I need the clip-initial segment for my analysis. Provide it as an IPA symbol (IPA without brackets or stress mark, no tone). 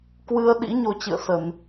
k